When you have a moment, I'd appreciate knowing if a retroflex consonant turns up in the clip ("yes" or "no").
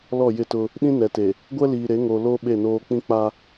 no